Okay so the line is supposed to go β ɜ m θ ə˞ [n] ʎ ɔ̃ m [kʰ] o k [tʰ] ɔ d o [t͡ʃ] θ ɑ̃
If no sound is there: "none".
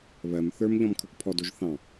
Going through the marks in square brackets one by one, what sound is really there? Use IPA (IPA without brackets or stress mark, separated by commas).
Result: m, kʰ, pʰ, ʒ